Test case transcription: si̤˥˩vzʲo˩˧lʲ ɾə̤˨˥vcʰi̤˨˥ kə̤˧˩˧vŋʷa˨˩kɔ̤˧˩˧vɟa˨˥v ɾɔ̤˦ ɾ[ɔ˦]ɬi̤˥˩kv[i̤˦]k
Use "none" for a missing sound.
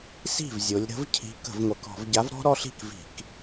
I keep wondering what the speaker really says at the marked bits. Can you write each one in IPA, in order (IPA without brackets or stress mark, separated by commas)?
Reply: ɔ˦, i̤˧˩˧